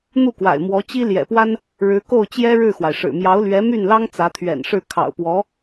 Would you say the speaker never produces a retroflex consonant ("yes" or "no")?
no